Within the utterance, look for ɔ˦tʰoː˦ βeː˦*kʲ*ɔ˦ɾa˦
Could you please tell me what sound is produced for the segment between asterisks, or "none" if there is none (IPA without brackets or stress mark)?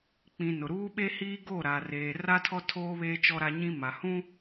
t͡ʃ